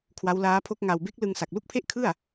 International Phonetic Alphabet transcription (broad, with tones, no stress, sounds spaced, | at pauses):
kʰ w a˦˥ w l aː˦˥ pʰ o˦˥ k̚ ŋ a˧ w b e˦˥ k̚ l ɯ˧ ŋ s a˨˩ k̚ l u˥˩ k̚ pʰ e˥˩ ʔ kʰ ɯ˥˩ a̯